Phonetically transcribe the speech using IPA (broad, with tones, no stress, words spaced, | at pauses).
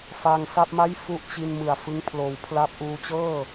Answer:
fa˧ŋsa˥˩p̚ma˥˩jfu˦˥ʔ t͡ɕi˧nmɯ˨˩a̯ fɯ˦˥ŋpʰloː˩˦wpʰla˦˥p̚ʔuː˧ t͡ɕɤː˥˩